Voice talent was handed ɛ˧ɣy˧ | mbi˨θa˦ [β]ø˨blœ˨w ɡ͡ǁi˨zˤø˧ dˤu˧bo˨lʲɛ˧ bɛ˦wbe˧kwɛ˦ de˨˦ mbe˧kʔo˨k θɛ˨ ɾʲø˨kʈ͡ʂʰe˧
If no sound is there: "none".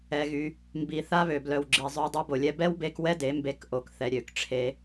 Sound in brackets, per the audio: β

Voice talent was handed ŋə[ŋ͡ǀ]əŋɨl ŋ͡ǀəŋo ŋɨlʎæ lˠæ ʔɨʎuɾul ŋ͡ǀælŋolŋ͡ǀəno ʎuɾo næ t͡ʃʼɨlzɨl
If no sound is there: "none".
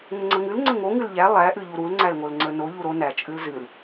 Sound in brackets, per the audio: ŋ͡ǀ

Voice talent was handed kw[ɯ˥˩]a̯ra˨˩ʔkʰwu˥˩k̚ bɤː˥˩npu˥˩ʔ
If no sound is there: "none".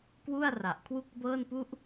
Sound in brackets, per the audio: u˥˩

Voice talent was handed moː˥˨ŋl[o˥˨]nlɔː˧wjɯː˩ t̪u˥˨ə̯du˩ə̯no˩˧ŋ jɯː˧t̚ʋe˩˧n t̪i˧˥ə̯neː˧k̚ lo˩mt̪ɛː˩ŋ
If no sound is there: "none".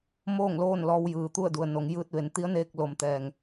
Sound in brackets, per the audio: oː˥˨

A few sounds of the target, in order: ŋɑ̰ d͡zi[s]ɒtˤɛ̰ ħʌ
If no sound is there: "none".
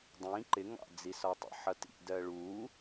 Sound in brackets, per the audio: s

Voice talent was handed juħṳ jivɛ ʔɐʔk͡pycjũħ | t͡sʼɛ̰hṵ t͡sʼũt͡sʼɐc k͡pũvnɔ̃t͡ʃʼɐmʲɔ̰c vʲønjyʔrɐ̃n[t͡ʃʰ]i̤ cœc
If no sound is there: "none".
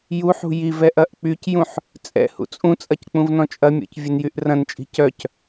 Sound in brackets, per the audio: t͡ʃʼ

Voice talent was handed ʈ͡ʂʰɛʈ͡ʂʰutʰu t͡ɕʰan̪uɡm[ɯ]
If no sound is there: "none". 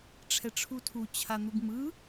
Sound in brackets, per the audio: ɯ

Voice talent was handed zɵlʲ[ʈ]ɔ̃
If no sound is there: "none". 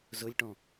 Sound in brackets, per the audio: ʈ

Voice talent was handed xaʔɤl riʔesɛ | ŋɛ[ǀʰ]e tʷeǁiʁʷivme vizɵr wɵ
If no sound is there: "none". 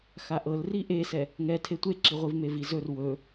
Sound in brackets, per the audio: tʰ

